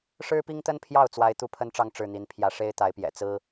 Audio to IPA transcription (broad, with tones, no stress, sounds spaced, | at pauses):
ʂ ɻ̩˥ p i˥ ŋ t̪ ə˥ n pʰ j ɑ˥˩ ʊ̯ t͡s w a˥ ɪ̯ t̪ u˥˩ pʰ ə˥ n ʈ͡ʂ ɑ˥˧ ŋ ʈ͡ʂ ɻ̩˥˩ n̪ i˧˥ n pʰ j ä˧˥ ʂ e˥ ɪ̯ t̪ a˧˥ ɪ̯ p j ɛ̰˨˩ t͡s ɹ̩˥